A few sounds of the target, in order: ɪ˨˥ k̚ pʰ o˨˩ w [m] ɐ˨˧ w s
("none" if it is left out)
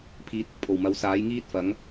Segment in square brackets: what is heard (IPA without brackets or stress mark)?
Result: m